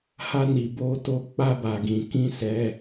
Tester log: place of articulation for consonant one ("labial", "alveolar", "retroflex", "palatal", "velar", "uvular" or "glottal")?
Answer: glottal